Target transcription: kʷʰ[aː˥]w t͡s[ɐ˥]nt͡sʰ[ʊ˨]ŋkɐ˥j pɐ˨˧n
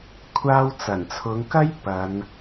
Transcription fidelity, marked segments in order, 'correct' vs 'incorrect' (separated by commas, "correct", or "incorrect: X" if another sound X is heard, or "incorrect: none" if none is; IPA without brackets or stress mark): correct, incorrect: ɐ˨˩, incorrect: ʊ˨˧